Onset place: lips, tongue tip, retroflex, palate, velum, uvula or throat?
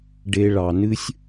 retroflex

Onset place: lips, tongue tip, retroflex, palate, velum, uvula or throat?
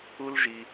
tongue tip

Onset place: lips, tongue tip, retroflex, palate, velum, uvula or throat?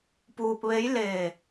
lips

